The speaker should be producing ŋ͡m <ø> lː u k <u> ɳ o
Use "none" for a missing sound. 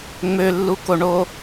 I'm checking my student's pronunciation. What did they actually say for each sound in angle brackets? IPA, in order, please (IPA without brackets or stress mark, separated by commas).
ø, o